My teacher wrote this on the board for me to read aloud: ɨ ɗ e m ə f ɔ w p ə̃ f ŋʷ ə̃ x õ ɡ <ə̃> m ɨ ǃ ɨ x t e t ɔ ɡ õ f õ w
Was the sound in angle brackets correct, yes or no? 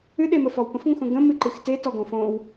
yes